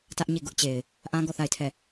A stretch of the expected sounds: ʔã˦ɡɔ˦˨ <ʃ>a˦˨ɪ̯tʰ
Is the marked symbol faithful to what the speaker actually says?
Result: no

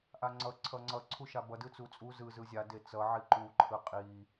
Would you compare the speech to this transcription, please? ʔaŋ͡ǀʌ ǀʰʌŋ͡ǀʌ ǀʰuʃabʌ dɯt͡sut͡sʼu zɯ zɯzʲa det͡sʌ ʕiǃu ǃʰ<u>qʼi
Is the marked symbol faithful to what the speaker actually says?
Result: no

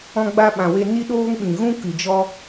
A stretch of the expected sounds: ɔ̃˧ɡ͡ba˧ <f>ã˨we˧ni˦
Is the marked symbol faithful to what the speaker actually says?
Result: no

